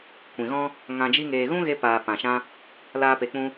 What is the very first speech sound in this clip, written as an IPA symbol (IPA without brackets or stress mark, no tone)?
kʷ